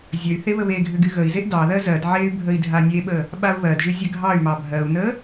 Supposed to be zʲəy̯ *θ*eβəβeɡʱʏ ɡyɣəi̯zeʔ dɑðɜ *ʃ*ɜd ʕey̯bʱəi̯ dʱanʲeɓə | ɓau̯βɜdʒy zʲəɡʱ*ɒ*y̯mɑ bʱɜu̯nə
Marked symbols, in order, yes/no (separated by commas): yes, no, no